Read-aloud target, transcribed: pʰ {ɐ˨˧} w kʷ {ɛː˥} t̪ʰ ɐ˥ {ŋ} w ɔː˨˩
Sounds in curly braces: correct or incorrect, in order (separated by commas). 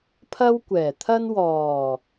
incorrect, incorrect, incorrect